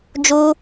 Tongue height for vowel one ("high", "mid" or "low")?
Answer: high